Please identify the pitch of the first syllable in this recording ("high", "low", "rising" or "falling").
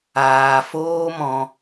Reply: low